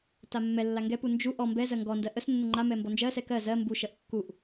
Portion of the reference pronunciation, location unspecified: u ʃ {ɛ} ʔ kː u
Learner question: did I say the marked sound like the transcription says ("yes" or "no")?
no